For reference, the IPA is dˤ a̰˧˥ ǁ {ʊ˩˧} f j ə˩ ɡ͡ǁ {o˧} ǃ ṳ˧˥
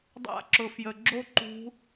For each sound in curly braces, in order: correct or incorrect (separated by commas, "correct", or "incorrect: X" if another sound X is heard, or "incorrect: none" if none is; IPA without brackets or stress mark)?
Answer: correct, correct